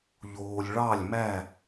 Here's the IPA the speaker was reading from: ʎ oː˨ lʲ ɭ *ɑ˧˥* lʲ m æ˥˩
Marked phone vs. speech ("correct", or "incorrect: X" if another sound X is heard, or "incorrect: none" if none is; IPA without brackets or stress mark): incorrect: ɑ˥˩